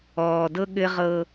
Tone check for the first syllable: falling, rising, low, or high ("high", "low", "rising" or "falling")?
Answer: low